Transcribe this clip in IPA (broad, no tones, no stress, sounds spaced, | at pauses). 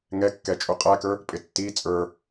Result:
ŋ ɛ kː ɛ t͡ʃʼ u qʼ æ k ə˞ | pʼ ɪ tː iː t͡sʼ ə˞